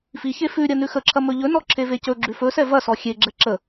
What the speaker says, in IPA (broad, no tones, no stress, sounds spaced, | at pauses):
f i ç e f ʉ ɾʲ ɐ n ʉ x ə ǁʰ ɐ m ɵ ʎ ɵ n ɔ ǁʰ e v e c ɵ ɡ͡ǁ ʉ f ɵ s ɛ v ɐ s ɔ xʲ e ɡ͡ǁ ɛ ǁ ə